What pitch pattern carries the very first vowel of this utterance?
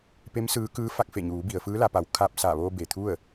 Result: rising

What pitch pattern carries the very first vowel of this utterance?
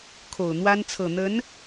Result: low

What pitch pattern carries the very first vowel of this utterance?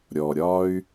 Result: low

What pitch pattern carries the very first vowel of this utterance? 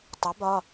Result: rising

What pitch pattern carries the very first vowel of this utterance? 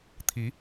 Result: rising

